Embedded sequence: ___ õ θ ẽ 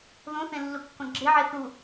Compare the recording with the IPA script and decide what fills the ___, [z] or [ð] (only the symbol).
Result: ð